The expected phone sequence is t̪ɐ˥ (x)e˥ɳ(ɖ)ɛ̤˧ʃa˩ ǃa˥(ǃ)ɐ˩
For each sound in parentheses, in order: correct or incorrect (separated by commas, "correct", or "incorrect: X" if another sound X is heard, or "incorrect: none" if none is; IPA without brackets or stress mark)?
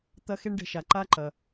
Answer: correct, correct, correct